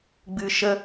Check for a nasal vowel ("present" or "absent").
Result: absent